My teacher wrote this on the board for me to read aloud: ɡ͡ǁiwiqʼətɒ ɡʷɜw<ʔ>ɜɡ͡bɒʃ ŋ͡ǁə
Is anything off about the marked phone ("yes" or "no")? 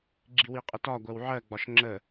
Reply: yes